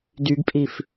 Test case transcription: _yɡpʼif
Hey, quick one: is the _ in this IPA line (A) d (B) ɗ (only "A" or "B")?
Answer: A